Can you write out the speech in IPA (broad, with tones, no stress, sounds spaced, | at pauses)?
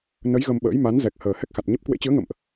n ə˨˦ j ɣ ə˧ m ɓ ə̰ː˧˥ j m a˨˦ n z ɛ˨˩ k̚ h əː˨˩ h ɛ˦˥ k̚ x a˨˩ t̚ ɲ ə˦˥ p̚ k w ḛ˧˥ t͡ɕ ɨ˨˦ ə̯ ŋ ə̰˧˨ m ʔ